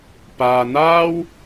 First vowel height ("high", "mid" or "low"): low